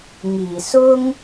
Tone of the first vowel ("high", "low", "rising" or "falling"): low